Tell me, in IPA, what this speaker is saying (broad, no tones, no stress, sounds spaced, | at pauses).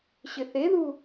ɕ ɪ θ e ð u